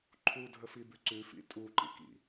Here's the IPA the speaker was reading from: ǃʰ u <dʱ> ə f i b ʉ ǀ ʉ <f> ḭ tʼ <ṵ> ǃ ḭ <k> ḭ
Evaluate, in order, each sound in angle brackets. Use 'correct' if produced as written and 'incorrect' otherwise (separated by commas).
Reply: correct, correct, incorrect, correct